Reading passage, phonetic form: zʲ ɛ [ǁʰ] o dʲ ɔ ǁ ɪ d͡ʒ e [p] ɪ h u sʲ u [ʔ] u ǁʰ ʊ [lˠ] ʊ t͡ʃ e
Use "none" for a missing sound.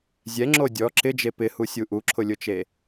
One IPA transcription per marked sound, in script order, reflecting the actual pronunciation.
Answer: ŋ͡ǁ, p, ʔ, lʲ

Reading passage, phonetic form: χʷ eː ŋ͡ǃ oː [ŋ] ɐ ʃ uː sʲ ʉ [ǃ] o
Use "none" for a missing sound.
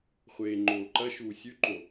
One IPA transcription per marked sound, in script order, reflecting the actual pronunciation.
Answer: ǃ, ǃ

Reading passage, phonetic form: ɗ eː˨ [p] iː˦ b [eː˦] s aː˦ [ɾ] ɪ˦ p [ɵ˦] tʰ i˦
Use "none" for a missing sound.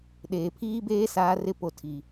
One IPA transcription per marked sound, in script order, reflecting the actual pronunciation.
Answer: pʰ, eː˦, r, o˦

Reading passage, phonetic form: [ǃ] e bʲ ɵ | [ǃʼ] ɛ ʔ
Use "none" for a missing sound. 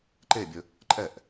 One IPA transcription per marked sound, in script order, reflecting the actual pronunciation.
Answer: ǃ, ǃʼ

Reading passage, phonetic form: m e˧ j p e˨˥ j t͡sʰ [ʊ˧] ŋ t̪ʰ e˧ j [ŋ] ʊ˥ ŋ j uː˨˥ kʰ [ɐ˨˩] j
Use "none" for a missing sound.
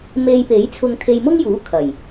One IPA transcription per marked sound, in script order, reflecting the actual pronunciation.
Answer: ʊ˧, m, ɐ˨˩

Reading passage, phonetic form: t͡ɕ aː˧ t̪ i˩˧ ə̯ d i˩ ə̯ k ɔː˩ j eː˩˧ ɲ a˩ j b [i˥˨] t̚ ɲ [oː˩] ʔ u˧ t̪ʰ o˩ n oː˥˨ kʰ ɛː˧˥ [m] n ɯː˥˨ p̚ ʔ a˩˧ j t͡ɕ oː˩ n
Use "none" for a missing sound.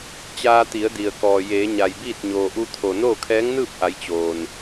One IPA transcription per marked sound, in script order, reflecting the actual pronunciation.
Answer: iː˥˨, oː˩, ŋ

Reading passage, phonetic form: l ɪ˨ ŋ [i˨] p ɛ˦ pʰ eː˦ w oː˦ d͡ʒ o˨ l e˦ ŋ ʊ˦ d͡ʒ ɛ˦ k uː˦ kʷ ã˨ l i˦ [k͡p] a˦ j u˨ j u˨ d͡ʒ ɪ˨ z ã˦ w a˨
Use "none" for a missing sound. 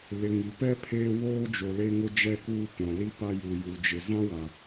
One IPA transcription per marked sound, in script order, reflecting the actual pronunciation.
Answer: i˨, p

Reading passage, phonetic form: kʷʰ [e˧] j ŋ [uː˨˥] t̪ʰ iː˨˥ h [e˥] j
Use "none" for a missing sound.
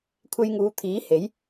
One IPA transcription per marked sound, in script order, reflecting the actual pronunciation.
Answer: e˧, uː˨˧, e˨˥

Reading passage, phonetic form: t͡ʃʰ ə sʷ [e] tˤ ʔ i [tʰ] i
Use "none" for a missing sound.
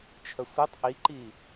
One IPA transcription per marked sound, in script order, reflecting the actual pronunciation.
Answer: i, ǃ

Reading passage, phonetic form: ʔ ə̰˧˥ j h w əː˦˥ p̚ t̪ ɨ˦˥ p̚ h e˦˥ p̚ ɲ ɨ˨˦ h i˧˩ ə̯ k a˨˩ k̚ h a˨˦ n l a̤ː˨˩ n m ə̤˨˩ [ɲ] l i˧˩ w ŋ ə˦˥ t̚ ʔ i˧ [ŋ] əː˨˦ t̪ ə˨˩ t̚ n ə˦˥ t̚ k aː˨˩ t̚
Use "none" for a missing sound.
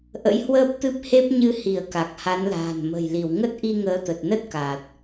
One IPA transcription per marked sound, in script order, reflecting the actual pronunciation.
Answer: j, ŋ

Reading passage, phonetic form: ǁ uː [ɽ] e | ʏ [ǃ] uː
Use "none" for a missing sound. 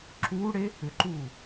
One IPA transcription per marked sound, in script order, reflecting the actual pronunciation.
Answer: ɽ, ǃ

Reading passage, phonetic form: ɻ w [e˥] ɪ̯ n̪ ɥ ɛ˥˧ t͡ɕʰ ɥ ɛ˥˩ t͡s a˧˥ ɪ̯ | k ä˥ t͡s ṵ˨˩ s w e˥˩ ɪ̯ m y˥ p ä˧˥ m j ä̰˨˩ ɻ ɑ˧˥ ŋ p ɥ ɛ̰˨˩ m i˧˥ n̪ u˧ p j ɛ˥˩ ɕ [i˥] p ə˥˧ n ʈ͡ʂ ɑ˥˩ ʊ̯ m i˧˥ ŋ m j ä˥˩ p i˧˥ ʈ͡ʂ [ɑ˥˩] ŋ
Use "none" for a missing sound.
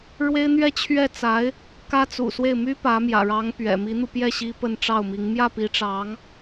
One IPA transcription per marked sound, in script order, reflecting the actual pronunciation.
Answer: e˥, i˥, ɑ˧˥

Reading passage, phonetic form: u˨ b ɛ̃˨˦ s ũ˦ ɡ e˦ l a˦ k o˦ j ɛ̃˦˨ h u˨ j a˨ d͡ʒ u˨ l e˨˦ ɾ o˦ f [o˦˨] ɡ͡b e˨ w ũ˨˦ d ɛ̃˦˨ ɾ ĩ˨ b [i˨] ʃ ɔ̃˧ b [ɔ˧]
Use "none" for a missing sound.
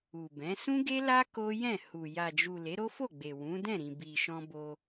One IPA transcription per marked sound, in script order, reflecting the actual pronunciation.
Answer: o˦˨, i˨, o˧

